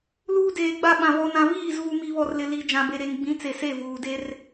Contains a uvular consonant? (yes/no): no